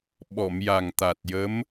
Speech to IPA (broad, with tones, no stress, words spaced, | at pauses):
ɓɔ˨˩˨mja˨˩ŋt̪a˨˩t̚jə˧˥m